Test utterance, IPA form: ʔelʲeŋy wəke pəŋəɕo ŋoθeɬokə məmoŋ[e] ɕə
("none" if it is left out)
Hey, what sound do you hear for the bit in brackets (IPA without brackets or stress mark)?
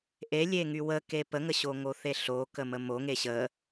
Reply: e